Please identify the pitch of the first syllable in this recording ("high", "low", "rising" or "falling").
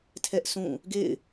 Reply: high